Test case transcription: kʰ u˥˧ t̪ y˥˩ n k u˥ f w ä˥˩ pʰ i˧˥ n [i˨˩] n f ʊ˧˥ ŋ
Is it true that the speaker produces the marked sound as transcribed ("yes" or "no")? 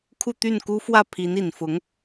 yes